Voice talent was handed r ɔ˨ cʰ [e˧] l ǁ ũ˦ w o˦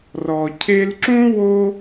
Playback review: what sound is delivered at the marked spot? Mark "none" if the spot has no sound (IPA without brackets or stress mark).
e˧